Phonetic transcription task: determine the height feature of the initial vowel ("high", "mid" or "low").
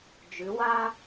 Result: high